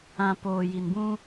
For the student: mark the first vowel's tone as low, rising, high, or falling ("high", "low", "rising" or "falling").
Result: low